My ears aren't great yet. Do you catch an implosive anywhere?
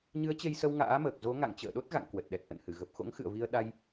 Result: yes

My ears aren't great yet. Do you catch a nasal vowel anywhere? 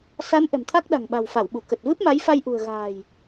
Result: no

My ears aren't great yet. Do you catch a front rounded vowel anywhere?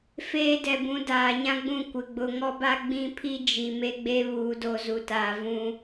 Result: no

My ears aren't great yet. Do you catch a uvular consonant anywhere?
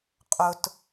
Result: yes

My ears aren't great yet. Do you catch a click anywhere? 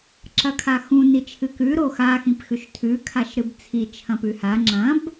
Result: yes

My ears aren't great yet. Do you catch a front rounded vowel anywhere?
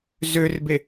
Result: yes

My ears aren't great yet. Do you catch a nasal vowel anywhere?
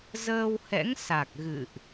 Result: no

